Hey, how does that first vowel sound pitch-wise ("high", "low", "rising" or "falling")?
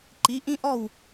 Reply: rising